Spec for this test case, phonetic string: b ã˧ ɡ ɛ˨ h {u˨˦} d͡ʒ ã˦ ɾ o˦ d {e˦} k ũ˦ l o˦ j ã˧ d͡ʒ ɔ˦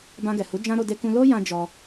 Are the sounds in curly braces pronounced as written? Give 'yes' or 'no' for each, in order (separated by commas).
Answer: yes, yes